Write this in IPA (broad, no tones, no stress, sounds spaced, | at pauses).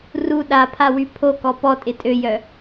r u ɗ a pʰ a w y pʰ o k ɔ p ɔ tʼ ɪ tʼ ø j œ